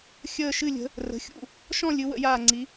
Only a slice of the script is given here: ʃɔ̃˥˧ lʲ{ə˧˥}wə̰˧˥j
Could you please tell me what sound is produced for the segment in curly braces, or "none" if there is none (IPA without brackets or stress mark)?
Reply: ɨ˧˥